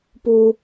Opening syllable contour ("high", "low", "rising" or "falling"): high